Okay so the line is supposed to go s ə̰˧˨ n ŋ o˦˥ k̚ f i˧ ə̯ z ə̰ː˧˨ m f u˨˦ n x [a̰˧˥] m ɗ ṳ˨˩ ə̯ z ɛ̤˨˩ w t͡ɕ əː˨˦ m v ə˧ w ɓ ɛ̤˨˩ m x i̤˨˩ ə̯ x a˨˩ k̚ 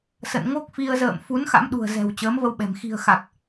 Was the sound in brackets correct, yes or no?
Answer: yes